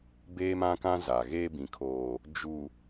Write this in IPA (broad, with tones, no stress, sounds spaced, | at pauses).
b eː˦ m ã˦ k ã˦ z a˨ ɣ e˦ b ĩ˨ kʰ oː˨ | d͡ʒ u˨